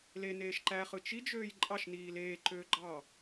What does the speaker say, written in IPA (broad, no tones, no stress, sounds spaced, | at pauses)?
l e n eː ʃ ǃ æ χ ɯ t͡ʃ i d͡ʒ øː j ǃʼ ɑ ʃ n iː l eː ǃ øː ɡ͡ǃ ɑ